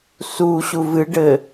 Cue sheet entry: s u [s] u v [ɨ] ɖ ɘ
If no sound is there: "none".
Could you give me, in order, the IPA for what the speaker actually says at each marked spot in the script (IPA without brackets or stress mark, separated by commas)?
ɕ, ɨ